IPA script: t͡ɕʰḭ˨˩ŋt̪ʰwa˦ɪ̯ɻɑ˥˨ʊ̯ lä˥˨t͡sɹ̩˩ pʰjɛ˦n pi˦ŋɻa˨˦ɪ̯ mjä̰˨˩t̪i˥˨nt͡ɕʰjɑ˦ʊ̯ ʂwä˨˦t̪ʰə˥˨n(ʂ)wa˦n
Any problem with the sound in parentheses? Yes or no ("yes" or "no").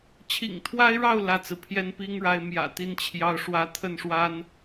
no